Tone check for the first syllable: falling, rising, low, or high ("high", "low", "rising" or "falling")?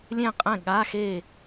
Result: falling